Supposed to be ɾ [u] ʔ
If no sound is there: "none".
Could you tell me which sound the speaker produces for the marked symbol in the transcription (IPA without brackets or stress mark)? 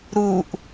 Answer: u